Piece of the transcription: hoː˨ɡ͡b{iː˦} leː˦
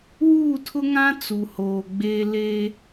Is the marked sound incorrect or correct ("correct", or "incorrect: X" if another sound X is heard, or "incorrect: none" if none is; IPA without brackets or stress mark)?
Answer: incorrect: eː˦